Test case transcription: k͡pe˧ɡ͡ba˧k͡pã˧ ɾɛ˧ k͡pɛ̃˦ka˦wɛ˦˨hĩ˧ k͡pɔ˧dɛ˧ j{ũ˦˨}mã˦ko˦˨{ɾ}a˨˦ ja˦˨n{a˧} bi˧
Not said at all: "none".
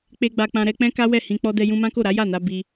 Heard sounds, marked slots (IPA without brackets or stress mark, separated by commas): ũ˧, ɾ, a˧